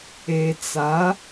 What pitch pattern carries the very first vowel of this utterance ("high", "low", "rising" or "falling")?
low